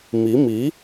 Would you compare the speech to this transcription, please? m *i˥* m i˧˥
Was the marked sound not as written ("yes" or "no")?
yes